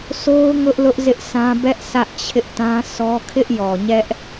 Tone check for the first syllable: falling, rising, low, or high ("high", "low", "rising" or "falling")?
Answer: high